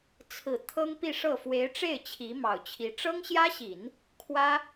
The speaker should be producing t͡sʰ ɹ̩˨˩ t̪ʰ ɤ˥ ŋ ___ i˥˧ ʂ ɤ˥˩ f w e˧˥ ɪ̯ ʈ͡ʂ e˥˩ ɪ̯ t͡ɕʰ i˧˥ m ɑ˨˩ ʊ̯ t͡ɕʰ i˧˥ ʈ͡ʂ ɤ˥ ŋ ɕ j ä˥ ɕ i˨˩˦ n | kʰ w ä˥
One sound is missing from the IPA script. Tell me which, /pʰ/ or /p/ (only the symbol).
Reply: p